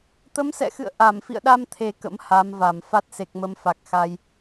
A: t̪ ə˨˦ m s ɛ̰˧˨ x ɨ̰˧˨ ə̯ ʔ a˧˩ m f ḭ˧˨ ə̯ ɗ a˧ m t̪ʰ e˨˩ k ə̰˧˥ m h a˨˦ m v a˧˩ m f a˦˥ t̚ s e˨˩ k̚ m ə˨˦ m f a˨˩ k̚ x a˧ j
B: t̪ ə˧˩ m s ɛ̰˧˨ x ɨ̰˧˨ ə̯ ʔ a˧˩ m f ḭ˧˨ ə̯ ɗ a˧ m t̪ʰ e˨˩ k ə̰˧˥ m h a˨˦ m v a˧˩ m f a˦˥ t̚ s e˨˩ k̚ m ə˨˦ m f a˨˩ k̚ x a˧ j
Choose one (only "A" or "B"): A